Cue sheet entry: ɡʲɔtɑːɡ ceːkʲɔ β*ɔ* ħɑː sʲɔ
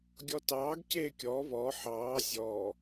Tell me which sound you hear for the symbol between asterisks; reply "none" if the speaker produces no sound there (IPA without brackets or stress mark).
ɔ